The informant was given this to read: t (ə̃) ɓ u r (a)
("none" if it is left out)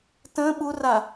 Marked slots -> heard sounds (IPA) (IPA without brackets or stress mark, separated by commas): ə̃, a